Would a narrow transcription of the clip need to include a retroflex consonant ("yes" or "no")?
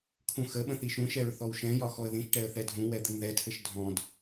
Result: yes